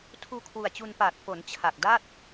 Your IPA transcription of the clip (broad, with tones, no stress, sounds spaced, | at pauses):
tʰ uː˧ kʰ w u˨˩ a̯ t͡ɕ u˧ n p aː˨˩ t̚ f o˩˦ n t͡ɕʰ a˨˩ k̚ d a˥˩ t̚